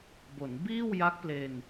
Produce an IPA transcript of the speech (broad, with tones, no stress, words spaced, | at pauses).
bo˩˦nbiː˥˩wja˦˥k̚ple˧n